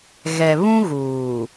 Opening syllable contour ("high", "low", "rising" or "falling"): low